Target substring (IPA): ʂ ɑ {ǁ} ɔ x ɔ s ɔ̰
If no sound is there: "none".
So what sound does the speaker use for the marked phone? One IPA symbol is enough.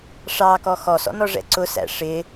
k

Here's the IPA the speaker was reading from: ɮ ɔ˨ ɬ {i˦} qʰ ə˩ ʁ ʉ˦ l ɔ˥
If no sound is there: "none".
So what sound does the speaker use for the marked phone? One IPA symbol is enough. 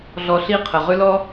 i˦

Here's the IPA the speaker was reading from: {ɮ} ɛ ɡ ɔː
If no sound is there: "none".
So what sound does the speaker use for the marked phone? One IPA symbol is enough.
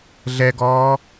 ɮ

